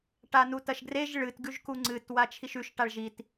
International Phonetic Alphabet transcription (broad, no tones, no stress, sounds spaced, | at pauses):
ʈ a n u t ɐ ʃ ɡ r e ʒ ɭ ɨ t ɡ ʉ ʒ k u ŋ͡ǀ ɨ t w a t͡ʃʰ i ʃ ʉ ʃ ʈ a ɭ ʒ i t